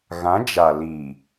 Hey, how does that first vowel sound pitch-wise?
rising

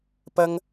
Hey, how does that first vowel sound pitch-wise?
high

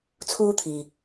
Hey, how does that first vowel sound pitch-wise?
high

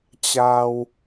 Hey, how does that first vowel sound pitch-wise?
low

